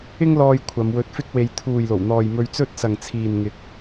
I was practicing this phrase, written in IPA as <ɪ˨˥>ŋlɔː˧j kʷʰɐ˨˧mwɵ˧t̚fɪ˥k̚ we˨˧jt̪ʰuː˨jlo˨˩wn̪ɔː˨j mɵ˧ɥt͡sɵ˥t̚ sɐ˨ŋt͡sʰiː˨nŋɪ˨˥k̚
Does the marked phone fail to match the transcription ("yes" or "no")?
yes